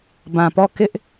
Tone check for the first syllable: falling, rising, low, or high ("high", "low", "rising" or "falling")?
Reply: low